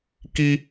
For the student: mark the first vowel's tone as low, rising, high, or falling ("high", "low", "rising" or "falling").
high